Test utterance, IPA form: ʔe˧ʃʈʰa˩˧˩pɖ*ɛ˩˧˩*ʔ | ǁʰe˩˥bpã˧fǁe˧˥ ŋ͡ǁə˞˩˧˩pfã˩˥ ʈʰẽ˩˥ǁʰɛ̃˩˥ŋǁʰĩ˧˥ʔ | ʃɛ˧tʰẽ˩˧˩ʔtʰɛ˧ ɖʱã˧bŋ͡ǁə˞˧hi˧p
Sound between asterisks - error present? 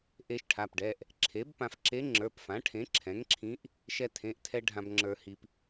no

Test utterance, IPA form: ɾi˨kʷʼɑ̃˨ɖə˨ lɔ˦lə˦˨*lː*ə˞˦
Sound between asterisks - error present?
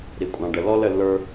no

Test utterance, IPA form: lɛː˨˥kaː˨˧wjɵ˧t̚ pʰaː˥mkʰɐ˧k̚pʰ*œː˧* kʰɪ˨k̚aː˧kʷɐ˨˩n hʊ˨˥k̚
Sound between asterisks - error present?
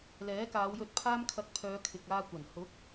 yes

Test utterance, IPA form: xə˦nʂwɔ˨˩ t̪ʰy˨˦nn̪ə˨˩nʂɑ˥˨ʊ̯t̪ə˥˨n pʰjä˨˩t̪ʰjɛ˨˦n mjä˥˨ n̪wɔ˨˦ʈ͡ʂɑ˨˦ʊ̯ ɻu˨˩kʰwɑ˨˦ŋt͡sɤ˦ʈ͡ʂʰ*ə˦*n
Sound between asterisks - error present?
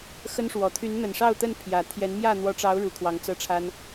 yes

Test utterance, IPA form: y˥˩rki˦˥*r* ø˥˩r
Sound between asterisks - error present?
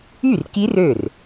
no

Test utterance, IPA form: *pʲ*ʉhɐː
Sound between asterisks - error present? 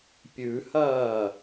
no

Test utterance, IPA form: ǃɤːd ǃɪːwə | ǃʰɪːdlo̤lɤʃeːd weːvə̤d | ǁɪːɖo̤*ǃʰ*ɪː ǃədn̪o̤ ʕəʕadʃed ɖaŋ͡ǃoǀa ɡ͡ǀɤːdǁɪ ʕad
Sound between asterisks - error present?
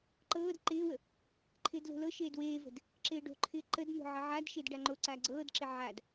no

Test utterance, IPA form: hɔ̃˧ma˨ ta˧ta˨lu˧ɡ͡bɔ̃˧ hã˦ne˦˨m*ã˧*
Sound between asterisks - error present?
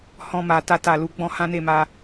yes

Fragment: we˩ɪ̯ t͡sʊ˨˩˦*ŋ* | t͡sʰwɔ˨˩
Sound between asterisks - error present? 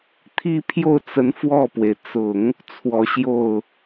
no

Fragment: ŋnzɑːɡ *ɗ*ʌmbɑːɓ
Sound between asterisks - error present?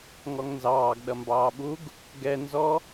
no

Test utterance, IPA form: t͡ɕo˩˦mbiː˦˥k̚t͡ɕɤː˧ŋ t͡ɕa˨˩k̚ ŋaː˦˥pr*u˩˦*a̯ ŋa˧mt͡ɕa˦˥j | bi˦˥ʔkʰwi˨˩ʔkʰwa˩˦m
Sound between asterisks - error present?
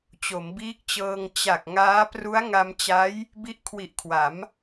yes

